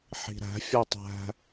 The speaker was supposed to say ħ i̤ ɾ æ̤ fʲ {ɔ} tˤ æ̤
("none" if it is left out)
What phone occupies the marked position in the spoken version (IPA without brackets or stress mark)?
ɔ